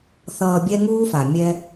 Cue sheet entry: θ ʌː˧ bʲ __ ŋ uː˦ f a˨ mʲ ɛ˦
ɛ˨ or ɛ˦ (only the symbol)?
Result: ɛ˦